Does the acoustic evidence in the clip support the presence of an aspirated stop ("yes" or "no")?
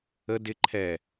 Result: yes